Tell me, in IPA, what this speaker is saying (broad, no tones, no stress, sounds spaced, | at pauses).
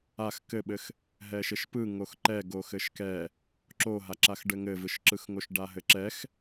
a x k ɘ ɓ ɘ x | ɦ ɛ ʃ ɘ ʃ p ɯ ŋ o x ǃ ɛ ɡ o x ɘ ʃ k ɛ | ǁ o ɦ a ǁ a x ɖ ɘ ŋ ɘ v ɯ ʃ ǁ ɯ x ŋ o ʃ ɖ a ɦ ɘ ǁ ɛ x